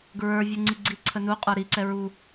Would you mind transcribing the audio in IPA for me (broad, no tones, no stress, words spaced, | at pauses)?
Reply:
ɡɹə˞ vʲuŋ͡ǀiɡ͡ǀi ǀʰənu qʼə˞ɾiǀɛ ɹu